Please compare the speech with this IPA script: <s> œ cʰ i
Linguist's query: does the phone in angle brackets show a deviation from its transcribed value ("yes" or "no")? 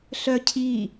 yes